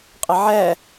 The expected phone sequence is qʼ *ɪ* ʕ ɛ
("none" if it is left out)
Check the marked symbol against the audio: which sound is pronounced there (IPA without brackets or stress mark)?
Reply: ɪ